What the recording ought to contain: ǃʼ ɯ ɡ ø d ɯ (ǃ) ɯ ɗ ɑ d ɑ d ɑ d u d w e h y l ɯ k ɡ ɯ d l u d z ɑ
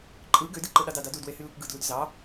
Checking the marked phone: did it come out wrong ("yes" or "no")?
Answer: no